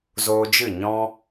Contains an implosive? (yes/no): no